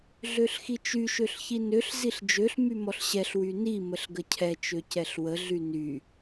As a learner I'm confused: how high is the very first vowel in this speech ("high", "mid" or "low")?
mid